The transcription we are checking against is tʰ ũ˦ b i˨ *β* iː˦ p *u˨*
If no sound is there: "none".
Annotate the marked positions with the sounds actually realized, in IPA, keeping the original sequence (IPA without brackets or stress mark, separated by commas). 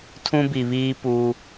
β, u˦